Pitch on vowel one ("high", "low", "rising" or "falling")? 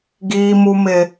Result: high